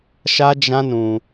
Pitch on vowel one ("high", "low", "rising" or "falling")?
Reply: high